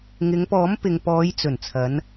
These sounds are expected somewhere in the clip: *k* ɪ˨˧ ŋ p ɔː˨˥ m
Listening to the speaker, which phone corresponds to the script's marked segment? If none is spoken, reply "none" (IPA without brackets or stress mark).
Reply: ŋ